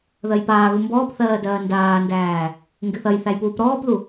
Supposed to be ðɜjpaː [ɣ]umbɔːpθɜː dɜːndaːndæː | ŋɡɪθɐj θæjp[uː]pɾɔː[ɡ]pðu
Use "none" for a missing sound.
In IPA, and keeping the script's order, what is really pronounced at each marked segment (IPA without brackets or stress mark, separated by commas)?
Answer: ɣ, uː, none